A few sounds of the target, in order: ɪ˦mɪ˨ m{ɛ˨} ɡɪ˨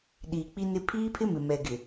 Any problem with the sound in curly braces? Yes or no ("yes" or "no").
no